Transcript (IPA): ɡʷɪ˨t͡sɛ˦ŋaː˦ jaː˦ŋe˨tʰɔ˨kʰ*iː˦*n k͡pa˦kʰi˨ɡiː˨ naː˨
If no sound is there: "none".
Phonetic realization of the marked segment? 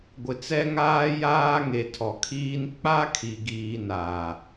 iː˦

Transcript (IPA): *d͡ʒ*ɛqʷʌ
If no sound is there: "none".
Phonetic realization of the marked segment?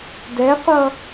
d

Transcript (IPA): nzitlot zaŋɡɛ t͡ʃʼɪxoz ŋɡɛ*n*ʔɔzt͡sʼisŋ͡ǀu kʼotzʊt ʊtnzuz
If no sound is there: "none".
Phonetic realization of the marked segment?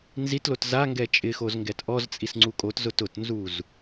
t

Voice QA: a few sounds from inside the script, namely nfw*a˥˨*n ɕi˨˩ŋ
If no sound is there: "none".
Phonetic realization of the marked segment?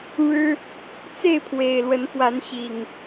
a˨˦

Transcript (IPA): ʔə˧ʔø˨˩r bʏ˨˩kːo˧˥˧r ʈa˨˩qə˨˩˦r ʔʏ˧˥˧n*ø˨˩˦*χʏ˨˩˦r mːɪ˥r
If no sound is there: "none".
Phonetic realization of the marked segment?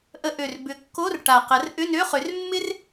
ø˧˥˧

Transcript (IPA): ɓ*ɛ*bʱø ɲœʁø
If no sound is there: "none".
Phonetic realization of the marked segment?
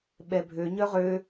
ɛ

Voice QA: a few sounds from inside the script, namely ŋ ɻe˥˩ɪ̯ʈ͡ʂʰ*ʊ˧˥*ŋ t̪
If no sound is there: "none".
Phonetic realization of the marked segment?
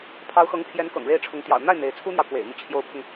ʊ˧˥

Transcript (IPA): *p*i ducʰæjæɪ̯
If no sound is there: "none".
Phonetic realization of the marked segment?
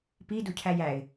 p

